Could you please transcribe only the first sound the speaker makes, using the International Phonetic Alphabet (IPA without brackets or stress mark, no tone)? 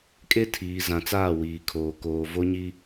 kʼ